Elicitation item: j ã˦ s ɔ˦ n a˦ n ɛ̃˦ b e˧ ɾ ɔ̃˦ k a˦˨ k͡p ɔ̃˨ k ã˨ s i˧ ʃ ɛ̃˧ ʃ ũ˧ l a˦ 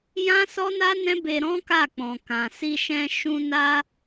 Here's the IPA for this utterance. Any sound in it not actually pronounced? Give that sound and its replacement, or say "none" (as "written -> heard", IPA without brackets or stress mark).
l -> n